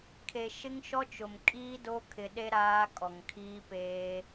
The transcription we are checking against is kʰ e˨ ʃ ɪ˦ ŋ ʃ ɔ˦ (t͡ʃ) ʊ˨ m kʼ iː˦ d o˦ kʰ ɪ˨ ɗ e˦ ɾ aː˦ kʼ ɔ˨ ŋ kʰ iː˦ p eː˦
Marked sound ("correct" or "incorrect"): correct